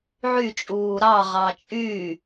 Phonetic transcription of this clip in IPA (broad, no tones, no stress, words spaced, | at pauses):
ʕyt͡ʃʼuː ɾɑʁɑ t͡ʃʼy